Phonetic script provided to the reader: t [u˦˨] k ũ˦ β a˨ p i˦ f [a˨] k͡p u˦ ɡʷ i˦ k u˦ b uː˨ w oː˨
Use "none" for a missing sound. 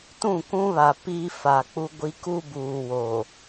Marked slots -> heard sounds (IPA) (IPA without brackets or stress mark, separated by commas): ũ˦˨, a˨